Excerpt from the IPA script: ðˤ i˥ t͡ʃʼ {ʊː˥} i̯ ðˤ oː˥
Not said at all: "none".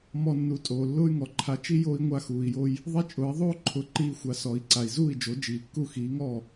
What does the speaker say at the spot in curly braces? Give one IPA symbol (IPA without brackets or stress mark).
ʊː˩˥